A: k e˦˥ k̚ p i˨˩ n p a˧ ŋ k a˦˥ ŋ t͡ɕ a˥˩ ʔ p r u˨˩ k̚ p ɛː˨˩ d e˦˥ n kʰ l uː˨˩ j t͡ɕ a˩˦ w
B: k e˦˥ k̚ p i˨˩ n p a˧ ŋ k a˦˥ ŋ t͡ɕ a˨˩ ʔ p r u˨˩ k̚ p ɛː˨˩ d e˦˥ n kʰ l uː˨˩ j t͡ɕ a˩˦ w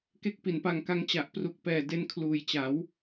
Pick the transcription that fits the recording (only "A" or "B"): B